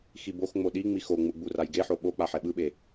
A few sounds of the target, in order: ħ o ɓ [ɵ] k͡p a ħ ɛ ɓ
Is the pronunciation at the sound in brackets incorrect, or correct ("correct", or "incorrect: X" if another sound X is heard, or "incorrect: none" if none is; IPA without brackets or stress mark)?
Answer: incorrect: o